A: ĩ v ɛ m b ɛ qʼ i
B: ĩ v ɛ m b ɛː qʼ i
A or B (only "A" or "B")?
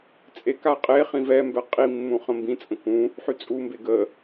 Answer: A